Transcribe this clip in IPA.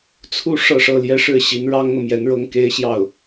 t͡sʰ u˥˧ ʂ ɤ˥˧ ʂ ɤ˥˩ l j ɛ˥ ʂ ɻ̩˥˩ ɕ i˧˥ n ɻ ɑ˥ ŋ n̪ ɤ˨ m j ɛ˧˥ n ɻ ɤ˥ ŋ k e˥ ɪ̯ ɕ j ɑ˥˩ ʊ̯

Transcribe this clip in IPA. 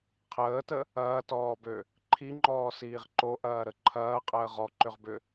qʰ əː t ə | ɐː t ɔː b ø | ǃʰ i ŋ͡ǃ ɔː s iː ʁ ǃ o ʔ ɐː ɾ ə ǃʰ ɐː qʼ əː ʁ ɔ ǃ ʏ ʁ b ʏ

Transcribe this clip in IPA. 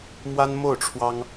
m w a˥ n m o˥˩ ʊ̯ ʈ͡ʂʰ w ɑ˥ ŋ

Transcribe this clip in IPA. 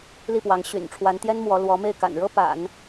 l i˥˩ p w ɑ˧˥ ŋ ɕ y̰˨˩ n ʈ͡ʂʰ w a˧˥ n t̪ j ɛ˥ n m w ɔ˧˥ l w ɔ˧˥ m e˥˩ ɪ̯ k a̰˨˩ n ɻ ɤ˥ p a̰˨˩˦ n

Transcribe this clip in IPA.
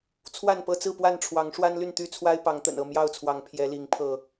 t͡sʰ w a˥˨ n p ɤ˥˨ t͡s ɹ̩˥˨ p w a˥˨ n ʈ͡ʂʰ w ɑ˨˦ ŋ ʂ w a˦ n l y˥˨ n t̪ y˥˨ t͡sʰ w a˦ ɪ̯ p ɑ˨˦ ŋ t̪ ə̰˨˩ n ɤ˥˨ m j ɑ˥˨ ʊ̯ t͡sʰ w ɑ˨˦ ŋ pʰ j ɛ˨˦ l i˨˦ ŋ pʰ ɤ˥˨

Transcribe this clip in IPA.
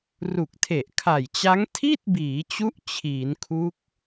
r u˨˩ k̚ tʰ e˨˩ ʔ kʰ a˨˩ j t͡ɕ a˦˥ ŋ tʰ i˥˩ t̚ b iː˩˦ t͡ɕ u˦˥ ʔ t͡ɕʰ iː˩˦ n kʰ u˦˥ k̚

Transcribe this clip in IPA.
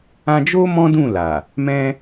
ã˧ d͡ʒ o˦ m ɔ̃˦ d ũ˦˨ l a˨ | m ɛ̃˦

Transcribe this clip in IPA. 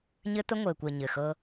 ɲ ɘ˦ t̪ ə˦ ŋʷ ɘː˨ kʷ əː˨ ɲ ɘ˨ x ɤ˦

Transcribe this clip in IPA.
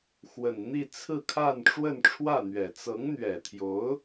x w ə˨˩ n n̪ i˥˧ t͡sʰ ɹ̩˥˧ kʰ a˥˧ n ʈ͡ʂ w ə˥˧ n ʈ͡ʂʰ w ä˥˩ n̪ ɥ ɛ˨˩ t͡s ɤ˧˥ ŋ n̪ ɥ ɛ˨˩ t̪ʰ j o˧˥ ʊ̯

